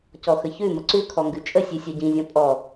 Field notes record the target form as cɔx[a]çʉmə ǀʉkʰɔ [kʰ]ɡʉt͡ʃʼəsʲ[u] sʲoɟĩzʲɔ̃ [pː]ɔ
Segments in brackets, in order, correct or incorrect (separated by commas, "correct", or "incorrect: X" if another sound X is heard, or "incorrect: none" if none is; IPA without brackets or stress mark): incorrect: ə, incorrect: ŋ, incorrect: ʉ, incorrect: pʼ